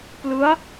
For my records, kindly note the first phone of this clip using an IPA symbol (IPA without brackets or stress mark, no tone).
p